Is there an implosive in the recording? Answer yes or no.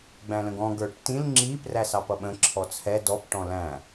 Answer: yes